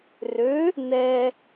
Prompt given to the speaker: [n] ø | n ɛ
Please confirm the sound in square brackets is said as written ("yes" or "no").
no